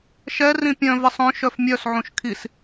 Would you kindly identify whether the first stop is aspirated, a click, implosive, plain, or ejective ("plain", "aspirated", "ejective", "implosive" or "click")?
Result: plain